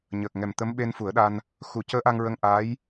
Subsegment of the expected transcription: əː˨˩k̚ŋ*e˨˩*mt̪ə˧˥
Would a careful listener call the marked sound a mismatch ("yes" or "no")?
yes